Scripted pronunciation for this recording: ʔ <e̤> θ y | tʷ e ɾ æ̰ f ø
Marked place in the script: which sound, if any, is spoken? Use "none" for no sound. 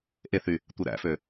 e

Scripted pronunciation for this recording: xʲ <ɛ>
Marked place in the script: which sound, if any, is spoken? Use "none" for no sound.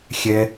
ɛ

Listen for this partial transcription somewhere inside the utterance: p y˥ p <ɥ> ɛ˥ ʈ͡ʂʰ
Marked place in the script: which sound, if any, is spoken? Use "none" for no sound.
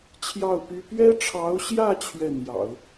ɥ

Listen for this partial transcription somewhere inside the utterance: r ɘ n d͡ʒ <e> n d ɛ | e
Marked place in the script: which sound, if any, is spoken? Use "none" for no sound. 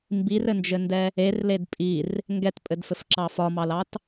ɘ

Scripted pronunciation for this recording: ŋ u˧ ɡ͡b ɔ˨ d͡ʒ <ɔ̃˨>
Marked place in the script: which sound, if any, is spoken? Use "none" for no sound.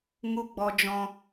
ɔ̃˨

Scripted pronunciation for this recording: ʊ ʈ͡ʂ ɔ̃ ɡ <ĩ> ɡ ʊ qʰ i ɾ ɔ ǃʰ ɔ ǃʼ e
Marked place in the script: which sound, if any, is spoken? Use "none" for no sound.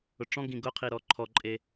ĩ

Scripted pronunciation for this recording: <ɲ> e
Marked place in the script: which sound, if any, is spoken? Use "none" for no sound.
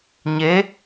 ɲ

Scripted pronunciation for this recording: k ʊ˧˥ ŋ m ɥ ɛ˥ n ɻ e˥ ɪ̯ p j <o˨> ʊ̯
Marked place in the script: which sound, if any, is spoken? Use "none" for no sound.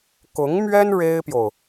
o˨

